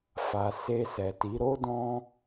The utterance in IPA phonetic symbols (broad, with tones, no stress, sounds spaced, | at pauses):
f a˨ s e˧ s ɛ˨ t i˨˦ ɾ o˦ d ɔ̃˦